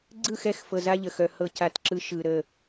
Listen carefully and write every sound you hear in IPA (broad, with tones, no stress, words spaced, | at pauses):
ɡ͡ǀɯ˦˨xɛ˦˨xfɤ˨ za˦ʎə˨xœ˨ hɤ˦˨ca˦˨tǁɯ˦ ʃɯ˨ɾə˦˨